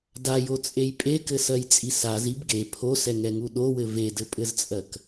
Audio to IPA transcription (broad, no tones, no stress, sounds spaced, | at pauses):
d a j o t͡sʼ e j pʼ e k ɘ s ɜ j t͡sʼ i s a z i b ɡ e pʰ o s ɛ ŋ ɛ ŋ u ɗ o w ɘ v e d ɘ pʼ ɘ z t͡sʼ ɜ k